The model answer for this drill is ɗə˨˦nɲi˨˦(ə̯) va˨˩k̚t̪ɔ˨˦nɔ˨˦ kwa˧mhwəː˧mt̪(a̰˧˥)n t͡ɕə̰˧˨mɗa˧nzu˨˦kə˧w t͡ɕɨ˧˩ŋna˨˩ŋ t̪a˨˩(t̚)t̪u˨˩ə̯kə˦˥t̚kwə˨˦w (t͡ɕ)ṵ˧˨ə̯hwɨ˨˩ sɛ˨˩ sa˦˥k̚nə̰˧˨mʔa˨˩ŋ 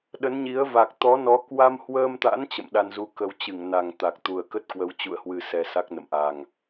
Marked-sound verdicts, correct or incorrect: correct, correct, incorrect, correct

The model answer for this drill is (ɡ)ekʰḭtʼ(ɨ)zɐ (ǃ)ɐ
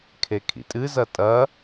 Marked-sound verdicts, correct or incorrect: incorrect, correct, incorrect

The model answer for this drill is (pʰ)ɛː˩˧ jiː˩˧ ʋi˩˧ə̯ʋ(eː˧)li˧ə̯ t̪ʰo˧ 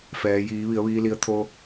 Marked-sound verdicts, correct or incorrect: incorrect, incorrect

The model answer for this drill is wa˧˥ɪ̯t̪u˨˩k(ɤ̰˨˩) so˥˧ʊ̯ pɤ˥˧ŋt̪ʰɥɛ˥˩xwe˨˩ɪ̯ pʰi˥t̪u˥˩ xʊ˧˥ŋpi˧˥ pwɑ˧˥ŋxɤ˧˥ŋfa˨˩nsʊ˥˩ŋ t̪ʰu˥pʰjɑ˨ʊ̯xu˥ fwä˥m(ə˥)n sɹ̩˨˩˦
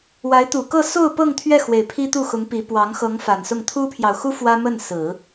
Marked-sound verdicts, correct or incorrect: incorrect, incorrect

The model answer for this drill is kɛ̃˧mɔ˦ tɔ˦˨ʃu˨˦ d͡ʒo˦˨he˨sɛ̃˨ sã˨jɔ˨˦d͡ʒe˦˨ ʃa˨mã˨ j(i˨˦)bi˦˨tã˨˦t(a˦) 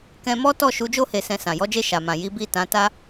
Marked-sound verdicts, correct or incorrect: correct, correct

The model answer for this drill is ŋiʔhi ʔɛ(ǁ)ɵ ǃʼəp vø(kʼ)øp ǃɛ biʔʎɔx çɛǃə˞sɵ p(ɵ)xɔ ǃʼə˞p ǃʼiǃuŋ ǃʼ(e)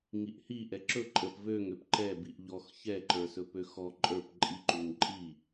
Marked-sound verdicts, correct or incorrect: correct, incorrect, incorrect, incorrect

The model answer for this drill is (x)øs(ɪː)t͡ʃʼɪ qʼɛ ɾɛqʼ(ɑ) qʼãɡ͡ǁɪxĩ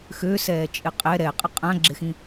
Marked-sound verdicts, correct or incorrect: correct, incorrect, incorrect

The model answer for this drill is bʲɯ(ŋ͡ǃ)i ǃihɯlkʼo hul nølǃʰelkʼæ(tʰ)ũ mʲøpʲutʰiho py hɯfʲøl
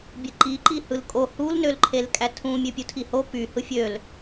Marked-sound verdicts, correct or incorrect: incorrect, correct

